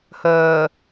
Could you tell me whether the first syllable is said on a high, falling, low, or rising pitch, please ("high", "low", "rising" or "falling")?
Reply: low